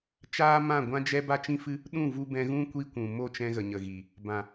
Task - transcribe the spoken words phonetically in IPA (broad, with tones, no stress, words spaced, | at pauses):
t͡ʃaː˦mã˦˨ɡʷã˦d͡ʒɛ˦ ba˦t͡ʃĩ˦ fɨ˦ | ɗũ˦˨vu˧bɛ̃˧ɣũ˦ kʷi˦kʷũ˨ mo˦˨t͡ʃɛ̃˧ ɣə˨ɲə˨ɣi˨ | bã˨